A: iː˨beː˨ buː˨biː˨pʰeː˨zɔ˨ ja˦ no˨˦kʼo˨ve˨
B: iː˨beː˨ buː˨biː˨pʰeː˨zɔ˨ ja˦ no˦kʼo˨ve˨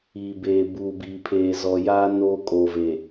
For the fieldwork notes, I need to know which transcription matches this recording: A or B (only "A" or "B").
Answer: B